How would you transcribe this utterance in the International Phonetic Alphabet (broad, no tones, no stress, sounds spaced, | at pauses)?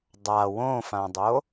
dˤ a w õ f ã dˤ o